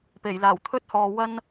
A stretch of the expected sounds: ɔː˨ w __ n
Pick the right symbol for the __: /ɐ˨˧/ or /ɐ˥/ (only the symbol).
ɐ˥